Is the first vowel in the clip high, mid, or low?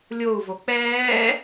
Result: mid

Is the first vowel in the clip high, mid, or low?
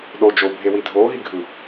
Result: mid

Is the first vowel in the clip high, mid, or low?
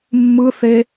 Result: high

